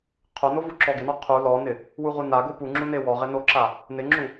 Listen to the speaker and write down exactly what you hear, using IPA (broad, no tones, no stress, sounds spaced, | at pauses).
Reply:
qʰ o n o v u ǁ ɔ ɡ ɪ n ɔ qʰ u l ɔ n ɪ | w u ʁ u n a ɡ o p u ŋ͡ǁ u n e w ɔ ʁ ɪ n o ǁ a | n ɪ ŋ͡ǁ u